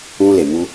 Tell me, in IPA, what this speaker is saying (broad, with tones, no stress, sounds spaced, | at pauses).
ũ˧ l e˨ m u˧